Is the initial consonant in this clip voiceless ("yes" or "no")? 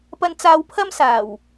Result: yes